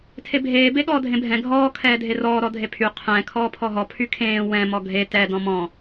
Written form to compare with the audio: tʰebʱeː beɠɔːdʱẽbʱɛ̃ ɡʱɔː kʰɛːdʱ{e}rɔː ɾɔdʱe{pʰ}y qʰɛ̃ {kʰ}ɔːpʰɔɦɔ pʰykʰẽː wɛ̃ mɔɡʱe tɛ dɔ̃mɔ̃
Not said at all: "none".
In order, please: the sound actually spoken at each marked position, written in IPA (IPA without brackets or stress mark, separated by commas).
e, pʰ, kʰ